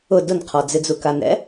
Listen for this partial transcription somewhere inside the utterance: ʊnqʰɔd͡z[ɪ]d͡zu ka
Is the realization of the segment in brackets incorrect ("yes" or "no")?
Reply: no